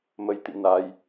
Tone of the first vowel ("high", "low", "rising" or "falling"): rising